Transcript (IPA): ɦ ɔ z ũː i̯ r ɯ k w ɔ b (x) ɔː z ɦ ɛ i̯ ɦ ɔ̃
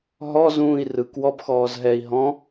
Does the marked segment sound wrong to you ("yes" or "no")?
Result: no